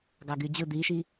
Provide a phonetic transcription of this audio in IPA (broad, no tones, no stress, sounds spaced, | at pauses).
ɡ ɑ ɡ y d͡ʑ ɯ d̪ i ʃ i